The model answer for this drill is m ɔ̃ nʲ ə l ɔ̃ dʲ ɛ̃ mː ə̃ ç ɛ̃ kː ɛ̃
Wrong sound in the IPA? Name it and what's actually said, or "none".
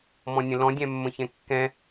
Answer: ə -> ə̃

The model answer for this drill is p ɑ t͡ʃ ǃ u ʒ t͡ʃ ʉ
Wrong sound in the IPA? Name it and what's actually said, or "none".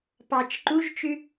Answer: none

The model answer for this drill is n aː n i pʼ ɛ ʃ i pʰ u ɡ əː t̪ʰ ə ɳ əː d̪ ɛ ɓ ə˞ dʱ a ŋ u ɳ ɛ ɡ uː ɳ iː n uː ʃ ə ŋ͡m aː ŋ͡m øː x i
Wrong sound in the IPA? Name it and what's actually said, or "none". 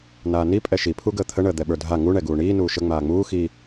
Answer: øː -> uː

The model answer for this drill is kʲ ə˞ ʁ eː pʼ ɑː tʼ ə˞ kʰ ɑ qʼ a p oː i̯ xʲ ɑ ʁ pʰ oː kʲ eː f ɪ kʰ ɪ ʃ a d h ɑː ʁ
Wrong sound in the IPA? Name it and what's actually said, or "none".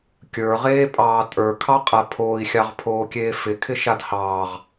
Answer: p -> pʰ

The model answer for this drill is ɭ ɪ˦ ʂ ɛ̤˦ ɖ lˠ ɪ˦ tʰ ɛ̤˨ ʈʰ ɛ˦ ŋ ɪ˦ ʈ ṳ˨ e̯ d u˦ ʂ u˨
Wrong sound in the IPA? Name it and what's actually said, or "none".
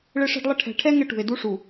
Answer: tʰ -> ʈʰ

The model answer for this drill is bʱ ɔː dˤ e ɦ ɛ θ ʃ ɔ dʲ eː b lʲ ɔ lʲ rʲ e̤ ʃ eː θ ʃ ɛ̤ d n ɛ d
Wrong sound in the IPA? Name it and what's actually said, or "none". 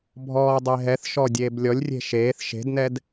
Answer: ɛ̤ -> e̤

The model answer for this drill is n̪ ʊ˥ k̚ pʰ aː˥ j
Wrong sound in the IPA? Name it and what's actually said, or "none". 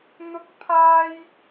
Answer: none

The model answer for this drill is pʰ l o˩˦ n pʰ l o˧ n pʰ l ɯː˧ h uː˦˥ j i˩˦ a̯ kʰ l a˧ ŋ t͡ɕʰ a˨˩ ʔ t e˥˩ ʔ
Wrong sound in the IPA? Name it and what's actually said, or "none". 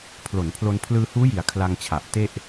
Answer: none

